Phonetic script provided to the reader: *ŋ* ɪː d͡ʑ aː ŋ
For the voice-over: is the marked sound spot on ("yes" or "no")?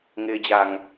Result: yes